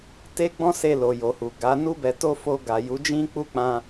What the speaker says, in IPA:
te˦ ɡ͡bɔ̃˦se˧lo˨ jo˨hu˨ɡa˨˦ nu˦bɛ˧to˦ fo˧ ɡa˨ju˨˦d͡ʒĩ˦ k͡pu˦k͡pã˧

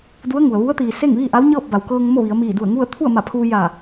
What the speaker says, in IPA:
du˧˥ə̯ŋu˩ə̯ ʋu˧˥ə̯t̪iː˩ se˥˨ŋʋiː˥˨ʔa˧˥w ɲɤː˥˨p̚ba˩wkɤː˧ŋ mo˥˨ʋi˩˧ə̯ miː˧˩du˧˩ə̯ ŋu˥˨ə̯ t̪ʰu˥˨ə̯ma˧˩pʰuː˧ ja˧˩

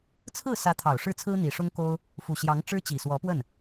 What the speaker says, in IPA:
t͡sʰɹ̩˥˩sä˧˥ t̪ʰɑ˨˩ʊ̯ʂɻ̩˥˩t͡sʰɹ̩˥ n̪i˨˩ʂʊ˥ŋko˥ʊ̯ | fu˨˩ɕjɑ˧˥ŋ ʈ͡ʂɻ̩˥t͡ɕi˨˩swɔ˧˥pwə˥˩n

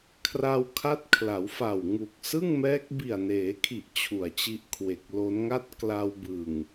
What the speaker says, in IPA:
kʰra˧wkʰa˦˥t̚kʰla˩˦wfa˨˩w ŋu˨˩k̚sɯ˥˩ŋmɛː˦˥k̚ bi˨˩a̯neː˩˦kʰi˨˩ʔ t͡ɕʰu˨˩a̯t͡ɕi˦˥ʔkʰwe˨˩k̚ lo˦˥nŋa˥˩t̚ kla˧wbɯ˨˩ŋ

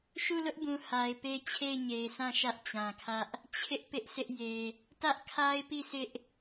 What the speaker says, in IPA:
ʃu˦˨lʊ˦ʔbũ˨ ha˨ɪ̯pe˦ t͡ɕʰe˦˨ɪ̯ɲe˨ɪ̯sã˦˨ ʃä˦ʔt͡ɕã˨kʰä˦ʔ | t͡ɕʰɪ˦ʔ pɪ˦ʔ sɪ˦ʔ je˨ | tä˦ʔkʰa˦ɪ̯pi˦˨ sɪ˦ʔ

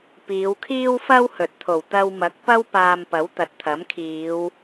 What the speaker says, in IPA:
piː˨˧wkʰiː˥wfɐ˥w hɵ˨t̚t̪ʰo˨˩w t̪ɐ˧wmɐ˨˥k̚ pɐ˥w paː˧mpɐ˨˥wt̪ɐ˨t̚t̪ʰɐ˨˥m kʰiː˨˧w

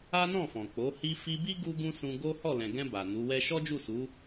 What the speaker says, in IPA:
a˦nɔ̃˦˨fɔ̃˨k͡po˨˦ hi˧fi˧bi˦ ɡu˦ɡũ˦sũ˧ ɡo˦ hɔ˦˨lɛ̃˨ɡɛ̃˧ ba˨ nu˨˦wɛ˦ ʃɔ˦d͡ʒu˦˨su˨˦

